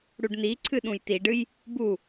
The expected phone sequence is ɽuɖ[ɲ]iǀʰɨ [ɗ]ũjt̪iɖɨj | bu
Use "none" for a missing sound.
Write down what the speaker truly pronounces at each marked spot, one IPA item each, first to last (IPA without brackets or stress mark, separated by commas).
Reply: n̪, ɗ